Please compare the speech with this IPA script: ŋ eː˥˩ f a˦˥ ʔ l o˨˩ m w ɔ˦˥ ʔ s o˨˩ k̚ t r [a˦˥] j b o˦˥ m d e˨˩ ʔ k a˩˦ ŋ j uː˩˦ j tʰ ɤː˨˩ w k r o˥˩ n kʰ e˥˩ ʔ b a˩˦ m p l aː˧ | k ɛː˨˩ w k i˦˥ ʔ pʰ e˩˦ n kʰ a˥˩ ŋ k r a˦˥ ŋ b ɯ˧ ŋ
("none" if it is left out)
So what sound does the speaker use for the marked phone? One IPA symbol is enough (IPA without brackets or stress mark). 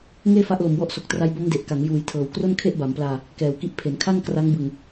a˦˥